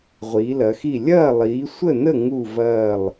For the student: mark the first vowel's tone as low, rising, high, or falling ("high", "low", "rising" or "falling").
rising